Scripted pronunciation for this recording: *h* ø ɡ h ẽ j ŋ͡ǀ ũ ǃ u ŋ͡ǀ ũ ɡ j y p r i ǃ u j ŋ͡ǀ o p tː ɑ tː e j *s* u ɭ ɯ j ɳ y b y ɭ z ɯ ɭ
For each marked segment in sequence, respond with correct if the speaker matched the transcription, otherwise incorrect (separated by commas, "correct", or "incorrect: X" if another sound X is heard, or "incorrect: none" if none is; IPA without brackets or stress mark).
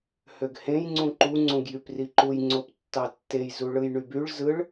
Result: correct, incorrect: z